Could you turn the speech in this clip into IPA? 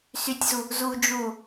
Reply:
sytʲzu | zu d͡ʒu

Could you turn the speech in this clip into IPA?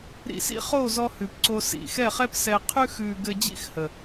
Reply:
ɾḭ˧ sḭ˦χo˦˨zɔ˧ hʉ˨pǀo˧ sḭ˨xɛ˦˨χɛ˦p sɛ˧ qʰʉ˧xʉː˨ ɡɘ˧d͡ʑḭ˦˨x hə˨

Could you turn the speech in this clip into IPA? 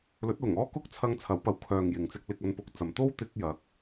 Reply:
lɵ˨˥t̚lʊ˨˩ŋɔː˥ kʊ˥k̚t͡sʰɐ˧ŋ t͡sʰɐ˨˥wpɐ˨˥w kʰœː˨ŋ jɪ˨ŋt͡sɪ˥k̚lɪ˧k̚ ɐ˧npʊ˧k̚t͡sɐ˨m t̪o˥wt̪ɪ˧k̚jɐ˨˥k̚

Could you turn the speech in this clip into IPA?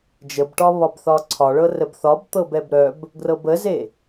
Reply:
d͡ʒəbʈɒβɒbθɒ ǀʰɒɭɤ rəbθɒb t̪ɤbɛbɾœb | ɡrɤbəze

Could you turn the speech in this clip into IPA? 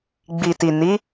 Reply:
ɡ͡bi˨ti˨ ni˨˦

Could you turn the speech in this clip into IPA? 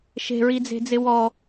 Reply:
ʃe̤ɹid͡ze̤d͡zɪ wɔ

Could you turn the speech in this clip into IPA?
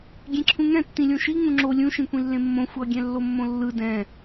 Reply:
ɡʲẽǁʰũŋɛ̃ tːĩlʲõʃi ŋũŋ͡ǁo lʲũ ʃĩkʷĩlːẽmːõ xʷʌ ɡʲɛ̃lːomːõlːɯ dɛ̃

